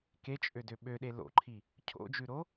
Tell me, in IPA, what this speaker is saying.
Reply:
k e t͡ʃʼ ø d ø ɓ ø ɗ e l o̰ ǃʰ i | cʰ o̰ d͡ʒ ʉ ɾ o

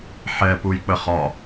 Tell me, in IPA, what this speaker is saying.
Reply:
ħ ɛ p u j k͡p ə χ ɒ

